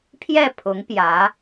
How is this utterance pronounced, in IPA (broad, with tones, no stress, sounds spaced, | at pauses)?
pʰ j ɛ˥˩ pʰ ʊ˧˥ ŋ p j ä˧˥